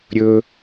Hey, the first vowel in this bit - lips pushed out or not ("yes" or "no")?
yes